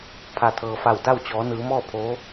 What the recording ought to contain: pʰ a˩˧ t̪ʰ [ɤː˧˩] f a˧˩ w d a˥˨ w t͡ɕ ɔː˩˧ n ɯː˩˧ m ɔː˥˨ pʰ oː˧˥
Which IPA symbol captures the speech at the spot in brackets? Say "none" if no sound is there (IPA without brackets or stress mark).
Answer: ɤː˩